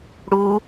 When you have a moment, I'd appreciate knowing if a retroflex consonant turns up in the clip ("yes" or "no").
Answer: yes